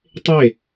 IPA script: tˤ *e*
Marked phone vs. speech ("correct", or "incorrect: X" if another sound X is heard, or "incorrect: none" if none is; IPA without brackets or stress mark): correct